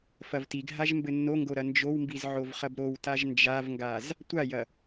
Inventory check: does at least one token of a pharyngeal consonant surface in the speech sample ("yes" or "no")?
yes